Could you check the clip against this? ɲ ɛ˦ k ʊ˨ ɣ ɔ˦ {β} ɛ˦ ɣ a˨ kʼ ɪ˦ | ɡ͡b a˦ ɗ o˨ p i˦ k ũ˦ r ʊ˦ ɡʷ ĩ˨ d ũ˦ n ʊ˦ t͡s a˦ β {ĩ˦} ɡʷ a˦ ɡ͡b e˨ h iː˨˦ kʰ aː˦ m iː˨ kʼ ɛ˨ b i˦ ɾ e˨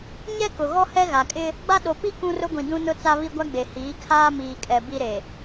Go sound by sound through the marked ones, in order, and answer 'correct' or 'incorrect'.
incorrect, incorrect

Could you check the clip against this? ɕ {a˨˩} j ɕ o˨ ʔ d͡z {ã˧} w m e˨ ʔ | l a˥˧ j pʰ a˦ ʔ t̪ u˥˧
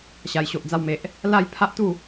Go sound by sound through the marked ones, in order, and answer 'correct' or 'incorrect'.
correct, incorrect

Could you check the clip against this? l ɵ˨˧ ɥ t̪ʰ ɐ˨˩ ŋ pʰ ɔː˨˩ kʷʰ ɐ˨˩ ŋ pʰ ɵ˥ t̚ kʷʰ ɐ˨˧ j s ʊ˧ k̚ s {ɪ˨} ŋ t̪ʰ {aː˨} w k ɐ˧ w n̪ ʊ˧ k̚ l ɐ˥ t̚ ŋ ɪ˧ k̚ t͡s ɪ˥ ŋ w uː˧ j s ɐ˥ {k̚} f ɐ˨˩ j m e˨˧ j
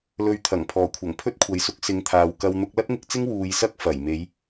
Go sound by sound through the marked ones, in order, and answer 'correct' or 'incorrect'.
incorrect, correct, correct

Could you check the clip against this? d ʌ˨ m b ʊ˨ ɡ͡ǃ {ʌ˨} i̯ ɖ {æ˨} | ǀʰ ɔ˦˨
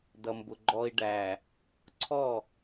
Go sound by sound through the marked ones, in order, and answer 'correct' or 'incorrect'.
incorrect, correct

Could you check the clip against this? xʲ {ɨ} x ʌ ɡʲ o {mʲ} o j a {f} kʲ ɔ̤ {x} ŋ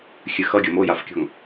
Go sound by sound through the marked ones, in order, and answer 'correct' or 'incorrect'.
correct, incorrect, correct, incorrect

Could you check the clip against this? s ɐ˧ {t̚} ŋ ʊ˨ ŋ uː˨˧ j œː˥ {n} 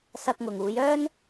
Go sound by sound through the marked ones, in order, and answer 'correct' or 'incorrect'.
incorrect, correct

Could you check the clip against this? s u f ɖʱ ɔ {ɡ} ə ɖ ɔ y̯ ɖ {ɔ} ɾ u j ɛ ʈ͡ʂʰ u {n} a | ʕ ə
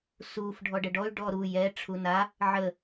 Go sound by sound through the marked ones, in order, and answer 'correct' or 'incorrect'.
incorrect, correct, correct

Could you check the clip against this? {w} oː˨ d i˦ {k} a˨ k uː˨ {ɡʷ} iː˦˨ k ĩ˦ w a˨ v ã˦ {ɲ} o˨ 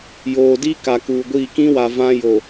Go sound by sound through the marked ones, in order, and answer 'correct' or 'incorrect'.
incorrect, correct, correct, incorrect

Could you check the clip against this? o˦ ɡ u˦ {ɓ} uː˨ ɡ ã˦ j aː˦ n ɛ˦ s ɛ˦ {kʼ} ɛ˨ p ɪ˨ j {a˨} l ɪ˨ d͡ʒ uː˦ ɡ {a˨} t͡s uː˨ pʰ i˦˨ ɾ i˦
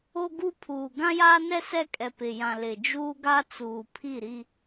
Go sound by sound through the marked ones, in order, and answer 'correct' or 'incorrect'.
incorrect, correct, incorrect, incorrect

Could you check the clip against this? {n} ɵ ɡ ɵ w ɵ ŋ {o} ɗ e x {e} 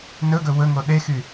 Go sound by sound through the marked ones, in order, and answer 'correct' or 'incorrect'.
correct, correct, incorrect

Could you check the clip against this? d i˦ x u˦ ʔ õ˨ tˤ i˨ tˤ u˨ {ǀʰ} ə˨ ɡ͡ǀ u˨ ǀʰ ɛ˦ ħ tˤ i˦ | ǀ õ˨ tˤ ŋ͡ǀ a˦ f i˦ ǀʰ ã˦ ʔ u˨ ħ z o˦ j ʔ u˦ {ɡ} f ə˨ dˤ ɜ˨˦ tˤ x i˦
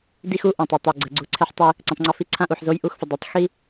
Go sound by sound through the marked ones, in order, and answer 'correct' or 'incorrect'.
incorrect, incorrect

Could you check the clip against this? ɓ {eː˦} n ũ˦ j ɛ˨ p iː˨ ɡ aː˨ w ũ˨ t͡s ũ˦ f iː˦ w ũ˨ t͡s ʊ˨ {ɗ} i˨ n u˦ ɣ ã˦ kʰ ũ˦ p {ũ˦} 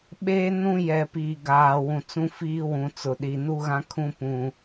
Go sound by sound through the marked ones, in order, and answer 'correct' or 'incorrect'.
correct, correct, correct

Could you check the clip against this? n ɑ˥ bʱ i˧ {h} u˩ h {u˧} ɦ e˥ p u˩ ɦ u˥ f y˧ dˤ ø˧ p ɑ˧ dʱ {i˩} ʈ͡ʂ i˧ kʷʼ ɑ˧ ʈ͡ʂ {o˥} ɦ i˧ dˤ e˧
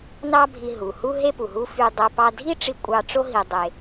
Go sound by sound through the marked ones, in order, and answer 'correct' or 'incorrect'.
incorrect, incorrect, incorrect, correct

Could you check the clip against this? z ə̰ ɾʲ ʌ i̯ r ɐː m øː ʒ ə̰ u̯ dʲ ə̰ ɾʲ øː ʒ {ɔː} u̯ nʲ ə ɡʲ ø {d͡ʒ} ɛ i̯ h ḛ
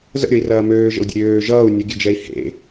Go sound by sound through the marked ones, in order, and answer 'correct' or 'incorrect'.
incorrect, correct

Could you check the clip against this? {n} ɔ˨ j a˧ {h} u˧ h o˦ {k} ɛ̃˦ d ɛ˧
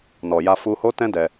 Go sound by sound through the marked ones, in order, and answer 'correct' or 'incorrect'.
correct, incorrect, incorrect

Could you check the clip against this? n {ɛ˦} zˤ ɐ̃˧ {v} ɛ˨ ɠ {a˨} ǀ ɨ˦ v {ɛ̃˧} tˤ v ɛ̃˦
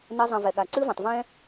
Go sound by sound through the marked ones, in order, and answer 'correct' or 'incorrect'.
correct, correct, correct, incorrect

